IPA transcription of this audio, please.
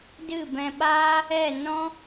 d ɨ˦˨ b ɛ̃˧ ɓ aː˦ | ɛ˦˨ n ɔ̃˦

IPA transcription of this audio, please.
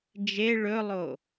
d͡ʒ e ɭ ɵ lˠ o

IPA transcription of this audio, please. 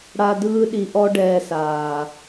ɽ a˧ d ɯː˦ ɗ i˧ ʔ ɔ˦ ɖ ɛː˧ s aː˨

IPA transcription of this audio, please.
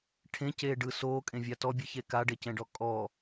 ʈʰ ẽ c eː ɖ ɯ s oː kʼ ẽ vʲ a t ɔ bʲ ɯ ç e k a ɖ e c ɛ̃ ɖ ɔ kʼ ɔ

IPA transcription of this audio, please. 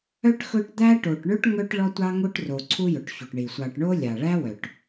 œ˥ ʈ x ɵ˦ ʈ d̪ æ˥ ʈ o˨ ʈ ɳ ɵ˥ ʈ ŋ œ˦ ʈ ɭ ɔ˥ tʷ ɑ˥ ŋ o˥ ʈ r o˨ ǀʰ u˦ j ɵ˩ ʈ ç u˩ ʈ ɳ i˩ sʷ ɑ˨ ʈ ɳ o˥ lʲ ɑ˩ ɭ æ˥ w œ˩ ʈ

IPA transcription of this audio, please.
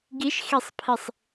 ɡ i ʃ x i sˤ pʰ i sˤ

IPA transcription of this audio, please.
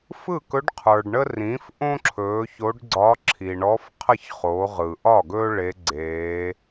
f ɯ˥˩ k ɵ˧˥ ɖ qʰ ə˞˩ ɖ ɳ ə˥ r ĩː˩˥ f ʔ õ˥ ǁʰ ɵː˩˧ ç o˧˥ ɖ ɡ͡ǀ ɒ˧˥ ǁʰ i˩ ɳ ɔ˧˥ f qʰ ə˥˩ ç χ o˩˧ ʁ ɯ˩ ʔ ɒ˥˩ ɡ ɵː˥ ɭ e˧˥ ɡ͡ǀ eː˩˧

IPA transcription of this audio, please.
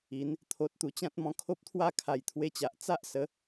i˨˦ n | t̪ʰ o˨ t̚ t̪ u˨˩ t͡ɕ ã˦ t̚ m ɔ̃˧ kʰ o˦ p̚ t̪ʰ w a˥˧ kʰ a˨˩ j t̪ʰ w e˧ t͡ɕ a˨ ʔ t͡s a˦ ʔ s ə˨˦

